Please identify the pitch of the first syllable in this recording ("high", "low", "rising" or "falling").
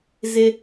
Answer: high